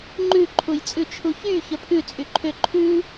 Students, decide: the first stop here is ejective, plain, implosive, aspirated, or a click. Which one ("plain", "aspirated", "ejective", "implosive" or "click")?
click